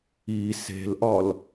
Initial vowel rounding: unrounded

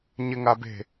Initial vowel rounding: unrounded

